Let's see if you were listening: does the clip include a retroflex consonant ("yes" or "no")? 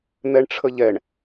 yes